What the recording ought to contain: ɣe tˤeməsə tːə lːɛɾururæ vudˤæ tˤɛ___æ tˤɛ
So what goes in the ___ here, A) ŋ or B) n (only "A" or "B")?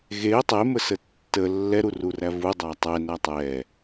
B